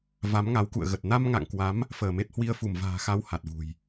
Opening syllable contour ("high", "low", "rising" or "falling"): rising